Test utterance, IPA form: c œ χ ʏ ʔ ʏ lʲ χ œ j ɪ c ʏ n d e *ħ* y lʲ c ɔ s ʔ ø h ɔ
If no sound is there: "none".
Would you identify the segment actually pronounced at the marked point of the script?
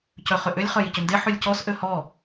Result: ħ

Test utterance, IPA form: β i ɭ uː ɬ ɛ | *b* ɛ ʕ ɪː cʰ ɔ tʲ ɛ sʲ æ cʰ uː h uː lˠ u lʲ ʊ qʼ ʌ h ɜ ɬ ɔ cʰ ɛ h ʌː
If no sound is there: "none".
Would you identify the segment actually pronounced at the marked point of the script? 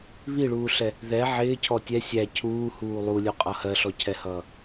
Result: ð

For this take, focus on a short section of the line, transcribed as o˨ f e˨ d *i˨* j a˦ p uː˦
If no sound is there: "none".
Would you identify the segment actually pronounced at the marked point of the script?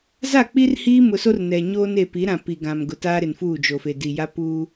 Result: i˨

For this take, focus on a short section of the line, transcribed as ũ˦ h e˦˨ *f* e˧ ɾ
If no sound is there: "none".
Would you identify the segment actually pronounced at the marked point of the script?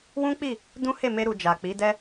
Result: m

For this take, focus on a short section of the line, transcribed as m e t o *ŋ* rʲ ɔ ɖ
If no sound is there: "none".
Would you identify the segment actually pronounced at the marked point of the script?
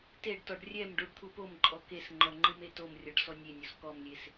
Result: m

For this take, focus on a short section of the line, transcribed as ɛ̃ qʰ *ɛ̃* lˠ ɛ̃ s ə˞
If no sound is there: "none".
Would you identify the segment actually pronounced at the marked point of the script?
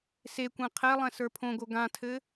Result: ɛ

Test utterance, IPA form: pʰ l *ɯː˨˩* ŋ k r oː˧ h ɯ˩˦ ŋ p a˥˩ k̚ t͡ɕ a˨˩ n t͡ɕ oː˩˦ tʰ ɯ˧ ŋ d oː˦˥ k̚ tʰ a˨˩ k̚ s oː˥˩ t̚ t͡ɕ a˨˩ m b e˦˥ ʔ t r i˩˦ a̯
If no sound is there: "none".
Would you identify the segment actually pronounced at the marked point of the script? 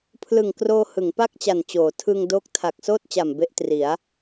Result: ɯ˨˩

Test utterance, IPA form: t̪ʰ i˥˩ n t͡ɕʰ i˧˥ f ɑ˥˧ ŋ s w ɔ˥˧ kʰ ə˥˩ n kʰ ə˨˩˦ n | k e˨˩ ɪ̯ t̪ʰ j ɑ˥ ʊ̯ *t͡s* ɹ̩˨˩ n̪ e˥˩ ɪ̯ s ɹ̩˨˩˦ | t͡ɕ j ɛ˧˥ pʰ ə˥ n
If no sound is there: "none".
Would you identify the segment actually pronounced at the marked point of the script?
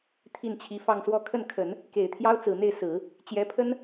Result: t͡s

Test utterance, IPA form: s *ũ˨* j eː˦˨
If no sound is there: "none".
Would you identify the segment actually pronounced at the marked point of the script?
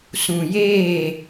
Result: ũ˨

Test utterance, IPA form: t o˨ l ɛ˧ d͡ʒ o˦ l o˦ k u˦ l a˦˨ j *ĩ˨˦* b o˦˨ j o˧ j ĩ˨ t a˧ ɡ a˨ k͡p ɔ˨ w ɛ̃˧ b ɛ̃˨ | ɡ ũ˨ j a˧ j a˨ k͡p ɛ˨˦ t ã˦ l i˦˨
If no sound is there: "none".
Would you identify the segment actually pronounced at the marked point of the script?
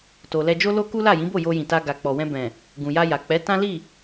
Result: ĩ˨˦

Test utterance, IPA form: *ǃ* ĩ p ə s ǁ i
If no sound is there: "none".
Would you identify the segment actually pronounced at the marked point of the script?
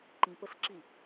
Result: ǃ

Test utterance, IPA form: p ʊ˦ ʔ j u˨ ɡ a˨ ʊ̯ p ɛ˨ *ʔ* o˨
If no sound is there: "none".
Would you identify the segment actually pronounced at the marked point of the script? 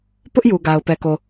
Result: k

